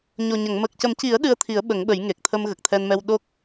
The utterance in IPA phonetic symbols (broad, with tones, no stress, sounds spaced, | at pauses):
ɲ o˨˩ ɲ ə˨˩˨ ŋ m əː˨˩ k̚ c ə˨˩˦ m c i˨˩˦ ə̯ ɗ ɨ˧ ə̯ t̪ʰ i˨˩˦ ə̯ ɓ ə˨˩˦ ŋ ɓ ə˨˩˦ j ŋ e˨˩ k̚ t̪ʰ ə˧ m ɣ ə˨˩ k̚ t̪ʰ ɛ˧ n m ɛ˧ w ɗ o˦˥ k̚